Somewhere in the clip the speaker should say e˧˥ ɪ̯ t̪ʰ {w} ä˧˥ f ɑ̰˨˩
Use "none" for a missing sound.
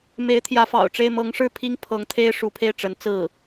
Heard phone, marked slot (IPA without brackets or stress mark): j